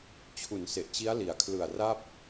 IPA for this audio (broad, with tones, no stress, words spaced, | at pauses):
t͡ɕʰu˩˦n se˨˩ʔt͡ɕi˦˥a̯li˩˦a̯ kʰlɯ˨˩a̯ ra˥˩p̚